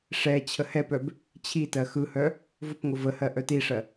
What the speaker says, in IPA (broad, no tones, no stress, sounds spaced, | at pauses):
ʂ ɛ t͡ɕʰ ə h ɛ p œ b | t͡ɕʰ i t ɜ x ɯ h œ | v ʊ p ŋ ʊ v ə h ɜ ʔ œ t i ʂ ɜ